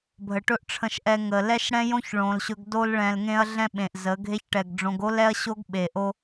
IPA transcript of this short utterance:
bʱ ə˨ ʈ ɵ˦ ʔ ʈ͡ʂʰ ə̃˧ ʃ ʔ ɛ˧ ŋ ə˨ l ɛ˦ ʃ ɽ ɛ̃˦ j õ˦ ç ɭ õ˨ l ɕ ɵ˧ ɡ d o˧ l ɭ ɛ̃˨ l ŋ ẽ˧ ɐ̯ ɮ ɛ̃˦ ɓ ẽ˨ ʔ z ə˨˦ ɡʱ e˦ ç ʈ ɛ˨ ɡ ɖ͡ʐ õ˧ ɡ o˦ l ɛ˦ ɐ̯ ɕ o˦ ɡ ɓ e˨ ʔ o˦

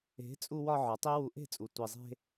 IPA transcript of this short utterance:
e̤˨˦ t͡sʼ u˧ w ɒ˧ ʕ ɒ˨˦ tˤ i˦ w u˧ ʔ e̤˦˨ t͡sʼ u˨ tʷ i˨ zˤ e̤˧

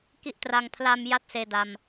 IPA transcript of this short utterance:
k i˥˩ ʔ t r a˧ ŋ pʰ l a˧ m j a˥˩ t̚ s eː˧ d a˧ m

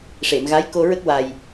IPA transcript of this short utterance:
ʂ e˨˩˨ m ɣ a˧˥ j k o˧ ɹ ə˦˥ k̚ w a˨˩ j

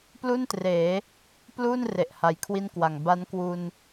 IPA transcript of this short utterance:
p l u˥˩ n t r eː˩˦ | p l uː˥˩ n r e˨˩ ʔ h a˨˩ j kʰ w i˥˩ n k w a˨˩ ŋ b a˦˥ n k w u˧ n

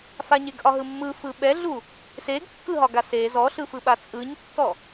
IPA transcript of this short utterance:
f a ɲ e ɡ ʔ ɒ ɦ ɯ mː ɯ f ɯ ɓ ɛ ɮ u | s e ɡ kː ɯ ɦ ɒ ɡ a s e z ɔ ɬ ɯ f ɯ ɓ a t͡sʼ ɯ ɲ tː ɔ

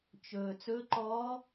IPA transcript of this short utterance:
t͡ʃ ɵː˩ t͡s ɵ˧˥ ǃ ɔː˧˥

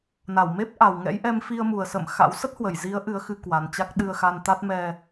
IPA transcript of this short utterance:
n a˧˩ w m e˦˥ p̚ ʔ a˨˩ w ŋ ɛ̰˧˥ j ʔ ɛ˧ m f i˧ ə̯ m u˨˩ ə̯ s ə̰˧˨ m x a̰˧˥ w s ə˦˥ t̚ h w ə˧˩ j z i˨˦ ə̯ ʔ ɨ˨˦ ə̯ x ɨ˧ k w a˨˩ n t͡ɕ a˦˥ k̚ ɗ ɨ˧ ə̯ x a˧ n t̪ a˦˥ t̚ m ɛ˧

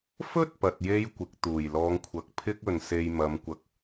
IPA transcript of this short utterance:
f ɵ˥ t̚ p ɐ˨ t̚ j e˧ j kʷ ɪ˨˥ k̚ t̪ uː˨˩ j l ɔː˨˧ ŋ kʷʰ ɐ˨ k̚ pʰ ɪ˥ k̚ ɵ˨ n s e˧ j m ɐ˨˧ m kʷ ɐ˧ k̚

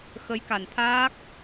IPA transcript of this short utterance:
x ə˧˥ j k a˨˩ n t̪ʰ aː˦˥ k̚

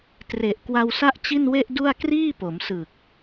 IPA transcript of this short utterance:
t r e˨˩ ʔ k w a˧ w s a˥˩ ʔ t͡ɕ i˥˩ n w e˥˩ ʔ d u˥˩ a̯ k r iː˥˩ p o˩˦ m s ɯ˨˩ k̚

